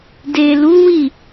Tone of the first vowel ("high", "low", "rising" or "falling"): low